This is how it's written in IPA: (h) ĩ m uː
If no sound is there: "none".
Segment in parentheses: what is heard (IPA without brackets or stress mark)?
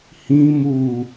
h